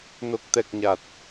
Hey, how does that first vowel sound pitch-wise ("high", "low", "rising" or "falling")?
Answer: low